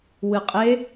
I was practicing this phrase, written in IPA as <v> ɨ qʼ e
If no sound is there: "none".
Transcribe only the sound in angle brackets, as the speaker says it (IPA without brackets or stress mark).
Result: w